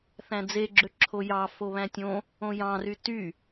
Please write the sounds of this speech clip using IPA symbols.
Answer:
θ æ̃ d͡z e ɡ͡ǁ ø ǁʰ o j ɑ f o β æ̃ tʲ õ | õ j ɑ̃ r y t y

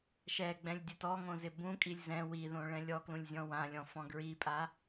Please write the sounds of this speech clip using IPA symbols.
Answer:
ʃ ɛ ɡ͡b ɛ̃ lʲ dʲ ʊ t ɔ ŋ õ z ɪ b ũ kʼ i lʲ z ɛ̃ w i ð õ ɭ ɛ̃ lʲ ɔ k l ũ lʲ zʲ ɔ̃ w ã lʲ ɔ̃ f ɔ̃ ɡ ɹ i pʼ a

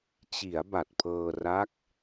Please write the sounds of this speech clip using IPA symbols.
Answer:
t͡ɕ i˩˦ a̯ b a˨˩ t̚ pʰ ɤː˧ r a˦˥ k̚

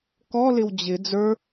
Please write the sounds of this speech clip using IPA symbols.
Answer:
k ɔ l ɪ w d͡ʑ ɪ d͡z ə˞

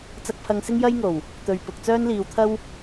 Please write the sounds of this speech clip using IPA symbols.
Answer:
t͡s ɐ˧ k̚ pʰ ɐ˧ ŋ s ɪ˥ ŋ j ɐ˥ j ŋ o˨˩ w | t̪ ɵ˨ ɥ p ʊ˨ k̚ t͡s œː˥ n l iː˧ w t̪ʰ ɐ˥ w

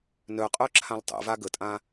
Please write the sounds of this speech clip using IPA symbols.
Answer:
n œ qʼ œ ǁʰ ã l tˤ ḛ v a ɡ ə tʼ ã

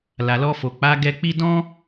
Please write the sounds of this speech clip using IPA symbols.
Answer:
l a˨ l ɔ˧ f o˨ k͡p a˨˦ ɡ ɛ˧ k͡p i˦ d ɔ̃˦

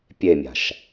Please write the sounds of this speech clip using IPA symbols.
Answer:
pʲ e mʲ a̤ ʃ

